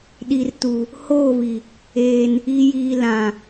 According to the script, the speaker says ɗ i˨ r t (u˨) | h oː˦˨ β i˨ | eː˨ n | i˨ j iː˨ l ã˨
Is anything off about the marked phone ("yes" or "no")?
no